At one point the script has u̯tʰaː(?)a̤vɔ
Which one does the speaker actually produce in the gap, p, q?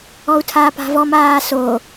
p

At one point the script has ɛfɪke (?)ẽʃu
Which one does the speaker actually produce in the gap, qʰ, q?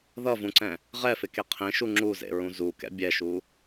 qʰ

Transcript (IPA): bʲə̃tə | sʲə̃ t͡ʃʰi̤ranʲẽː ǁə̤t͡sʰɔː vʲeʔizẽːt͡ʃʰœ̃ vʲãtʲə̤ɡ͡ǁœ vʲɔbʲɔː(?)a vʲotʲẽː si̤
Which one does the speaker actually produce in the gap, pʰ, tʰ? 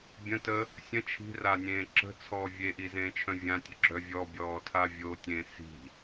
tʰ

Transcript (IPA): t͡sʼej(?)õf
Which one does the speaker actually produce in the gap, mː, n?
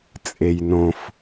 n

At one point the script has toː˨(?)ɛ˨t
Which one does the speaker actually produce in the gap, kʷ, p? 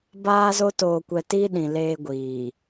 kʷ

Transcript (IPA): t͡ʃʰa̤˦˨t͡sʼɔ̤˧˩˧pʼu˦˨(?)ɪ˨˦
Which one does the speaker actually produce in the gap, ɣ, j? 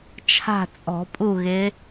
ɣ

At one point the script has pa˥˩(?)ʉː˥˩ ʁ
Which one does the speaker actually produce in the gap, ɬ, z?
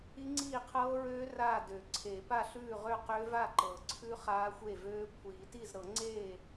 ɬ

